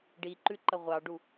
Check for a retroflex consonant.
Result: present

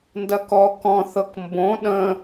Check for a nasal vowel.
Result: present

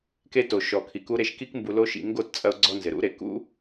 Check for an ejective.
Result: present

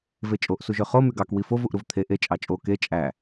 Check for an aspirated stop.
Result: present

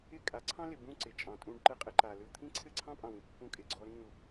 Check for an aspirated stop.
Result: present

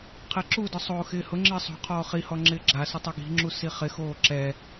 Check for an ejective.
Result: absent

